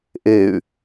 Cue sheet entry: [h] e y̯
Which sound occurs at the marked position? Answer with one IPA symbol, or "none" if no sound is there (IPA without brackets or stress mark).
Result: ʔ